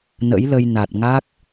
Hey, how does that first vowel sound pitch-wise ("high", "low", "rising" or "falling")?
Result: rising